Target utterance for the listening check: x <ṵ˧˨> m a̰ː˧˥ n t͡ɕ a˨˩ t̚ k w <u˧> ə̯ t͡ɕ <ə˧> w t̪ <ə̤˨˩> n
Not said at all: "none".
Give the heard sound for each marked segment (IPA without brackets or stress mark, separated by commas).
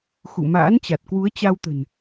ṵ˧˨, u˨˦, a˧, ə̤˨˩